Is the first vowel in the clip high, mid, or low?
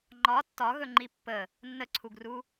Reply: low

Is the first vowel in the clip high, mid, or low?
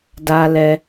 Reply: low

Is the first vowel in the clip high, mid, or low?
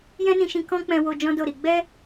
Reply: mid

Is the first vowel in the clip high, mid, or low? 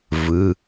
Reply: high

